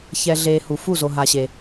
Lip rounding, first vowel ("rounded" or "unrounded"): unrounded